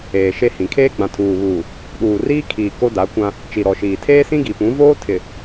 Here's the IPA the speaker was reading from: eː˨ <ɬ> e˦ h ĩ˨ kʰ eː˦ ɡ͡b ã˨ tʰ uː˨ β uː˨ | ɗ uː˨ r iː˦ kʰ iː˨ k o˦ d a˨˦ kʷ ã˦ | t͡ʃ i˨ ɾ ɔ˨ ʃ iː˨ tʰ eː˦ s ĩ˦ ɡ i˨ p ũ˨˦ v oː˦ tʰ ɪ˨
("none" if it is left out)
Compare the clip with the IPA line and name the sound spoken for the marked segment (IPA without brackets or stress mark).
ʃ